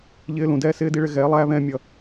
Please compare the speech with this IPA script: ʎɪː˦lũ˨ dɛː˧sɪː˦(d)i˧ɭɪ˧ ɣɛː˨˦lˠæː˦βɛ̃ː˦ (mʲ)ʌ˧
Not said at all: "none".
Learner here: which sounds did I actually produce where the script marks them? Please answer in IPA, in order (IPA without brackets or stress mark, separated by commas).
d, mʲ